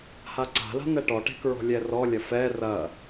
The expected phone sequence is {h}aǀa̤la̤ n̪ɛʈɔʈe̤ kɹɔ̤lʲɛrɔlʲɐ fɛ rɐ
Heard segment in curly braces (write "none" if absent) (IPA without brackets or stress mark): h